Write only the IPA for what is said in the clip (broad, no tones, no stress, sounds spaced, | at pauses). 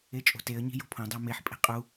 e t͡ʃʼ o̤ t e ə̯ ɲ i̤ j o̤ pʰ õ dˤ æ m e ħ pʼ e̤ qʼ u